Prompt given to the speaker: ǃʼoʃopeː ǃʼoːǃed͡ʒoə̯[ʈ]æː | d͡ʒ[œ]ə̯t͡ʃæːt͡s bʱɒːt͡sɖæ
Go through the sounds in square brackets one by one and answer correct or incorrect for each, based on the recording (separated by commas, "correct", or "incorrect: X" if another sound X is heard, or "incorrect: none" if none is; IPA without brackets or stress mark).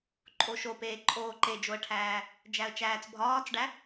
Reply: incorrect: ʈʰ, incorrect: æ